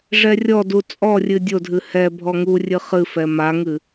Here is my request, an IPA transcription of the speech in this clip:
ʐ ɛ rʲ ɔ d u t͡sʼ ɔ rʲ ɨ dʲ o dʱ ɨ h ɛ bʱ ɔ ŋ u rʲ ɨ χ ɨ f ɛ m a ŋ ɨ

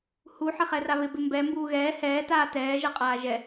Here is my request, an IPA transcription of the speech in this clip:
h u ħ ɪ χ ɛ r a β ɪ b ɪ m b ɛ m b uː ɣ ɛː h ɛː t aː t ɛː ʒ a qʼ aː ʒ ɛ

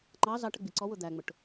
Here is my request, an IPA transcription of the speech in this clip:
ŋ͡ǃ ɑ z ɑ ʈ ə ɡ͡b i ǀ ɔ w ʊ d̪ æ ŋ͡m ʊ ʈ

